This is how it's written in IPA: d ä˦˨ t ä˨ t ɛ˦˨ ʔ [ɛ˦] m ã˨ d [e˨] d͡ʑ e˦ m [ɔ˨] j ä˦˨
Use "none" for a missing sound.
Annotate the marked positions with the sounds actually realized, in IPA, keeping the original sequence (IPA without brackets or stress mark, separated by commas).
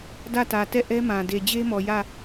ɛ˦, e˨, ɔ˨